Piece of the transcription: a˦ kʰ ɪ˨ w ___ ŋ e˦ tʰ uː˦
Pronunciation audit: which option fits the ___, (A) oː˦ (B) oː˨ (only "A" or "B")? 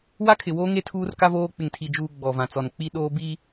A